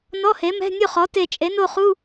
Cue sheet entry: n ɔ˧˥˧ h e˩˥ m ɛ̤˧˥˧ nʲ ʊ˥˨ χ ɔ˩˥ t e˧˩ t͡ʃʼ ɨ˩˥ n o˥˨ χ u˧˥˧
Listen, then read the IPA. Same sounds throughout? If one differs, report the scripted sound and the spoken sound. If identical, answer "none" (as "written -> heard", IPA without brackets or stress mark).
ɨ˩˥ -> e˩˥